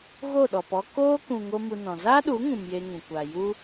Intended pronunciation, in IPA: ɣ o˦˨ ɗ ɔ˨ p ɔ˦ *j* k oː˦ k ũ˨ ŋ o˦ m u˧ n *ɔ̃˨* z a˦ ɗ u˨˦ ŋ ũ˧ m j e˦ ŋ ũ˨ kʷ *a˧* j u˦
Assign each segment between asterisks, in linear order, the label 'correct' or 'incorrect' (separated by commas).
incorrect, correct, incorrect